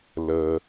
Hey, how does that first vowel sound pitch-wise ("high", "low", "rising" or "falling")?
low